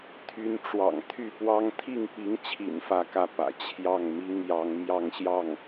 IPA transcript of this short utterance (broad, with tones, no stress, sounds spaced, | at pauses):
t̪ʰ y˧˥ n ʈ͡ʂ w ɑ̰˨˩ ŋ t̪ʰ y˥˩ p w ɑ˥ ŋ t̪ʰ i˥˩ ŋ p i˧˥ ŋ t͡ɕʰ ḭ˨˩ n f ä˥ k ä˥˩ p ä̰˨˩ t͡ɕʰ j ɑ˥˩ ŋ m i˥ ŋ j ɑ˧˥ ŋ m j ɑ˥˧ ŋ ɕ j ɑ˥˩ ŋ